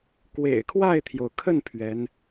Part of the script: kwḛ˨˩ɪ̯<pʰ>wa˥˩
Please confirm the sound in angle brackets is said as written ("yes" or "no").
no